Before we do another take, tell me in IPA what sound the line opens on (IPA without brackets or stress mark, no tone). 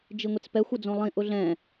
d͡ʒ